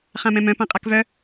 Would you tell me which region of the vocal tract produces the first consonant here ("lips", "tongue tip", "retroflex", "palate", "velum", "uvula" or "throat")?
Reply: uvula